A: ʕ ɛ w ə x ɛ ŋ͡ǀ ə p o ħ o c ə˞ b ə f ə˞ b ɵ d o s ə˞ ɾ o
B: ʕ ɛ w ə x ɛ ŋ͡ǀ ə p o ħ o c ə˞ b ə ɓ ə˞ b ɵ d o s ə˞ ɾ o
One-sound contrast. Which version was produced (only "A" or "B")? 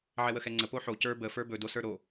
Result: A